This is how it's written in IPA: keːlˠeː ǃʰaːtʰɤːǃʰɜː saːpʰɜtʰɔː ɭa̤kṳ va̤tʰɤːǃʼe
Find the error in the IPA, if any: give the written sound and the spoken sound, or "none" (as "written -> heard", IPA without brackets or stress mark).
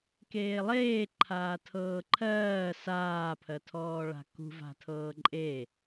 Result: none